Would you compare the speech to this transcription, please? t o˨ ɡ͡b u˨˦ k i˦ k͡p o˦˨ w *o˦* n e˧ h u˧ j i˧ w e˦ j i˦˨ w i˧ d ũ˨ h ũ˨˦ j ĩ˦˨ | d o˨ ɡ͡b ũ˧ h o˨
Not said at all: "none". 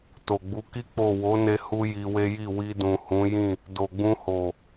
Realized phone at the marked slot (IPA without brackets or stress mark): o˨˦